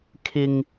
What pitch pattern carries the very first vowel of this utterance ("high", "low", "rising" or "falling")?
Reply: high